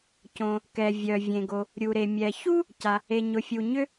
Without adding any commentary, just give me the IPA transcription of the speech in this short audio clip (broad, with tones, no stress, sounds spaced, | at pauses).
c õ˩ | k ɛ˩ vʲ œ˩ vʲ ẽ˩ ɡ o˩ | ɾʲ u˩ ɾ e˩ mʲ ɛ˩ ç u˥ | c a˩ | e˩ ɲ ʊ˩ fʲ u˩ ɲ ʏ˥